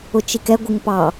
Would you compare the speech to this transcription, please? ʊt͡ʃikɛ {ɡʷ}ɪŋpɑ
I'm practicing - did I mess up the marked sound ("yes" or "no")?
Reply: no